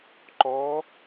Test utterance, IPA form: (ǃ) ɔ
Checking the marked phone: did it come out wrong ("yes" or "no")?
no